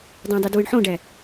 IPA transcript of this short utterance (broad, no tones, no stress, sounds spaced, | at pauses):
dˤ õ dˤ o d w ɯ ɳ ħ õ ɖ æ